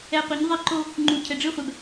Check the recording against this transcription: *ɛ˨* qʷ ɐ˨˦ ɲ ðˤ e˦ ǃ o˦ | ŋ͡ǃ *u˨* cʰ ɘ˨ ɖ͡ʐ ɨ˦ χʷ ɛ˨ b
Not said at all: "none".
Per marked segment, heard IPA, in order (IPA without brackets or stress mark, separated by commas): ɛ˨, u˨